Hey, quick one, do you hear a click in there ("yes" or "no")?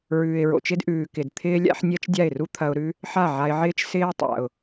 no